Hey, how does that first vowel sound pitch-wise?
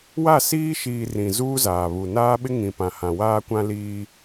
falling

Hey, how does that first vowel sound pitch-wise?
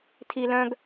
high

